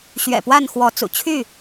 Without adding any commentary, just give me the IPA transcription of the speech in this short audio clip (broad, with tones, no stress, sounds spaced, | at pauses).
ɕ ɥ ɛ̰˨˩ p w a˥˨ n x w ɔ˨˦ t͡s ṵ˨˩ t͡ɕʰ y˥˨